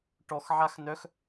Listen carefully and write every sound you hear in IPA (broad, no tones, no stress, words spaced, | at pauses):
ʈɔx ʕaxnœx